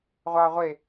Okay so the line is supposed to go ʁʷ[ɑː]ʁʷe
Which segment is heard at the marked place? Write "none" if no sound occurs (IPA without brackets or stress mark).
ɑː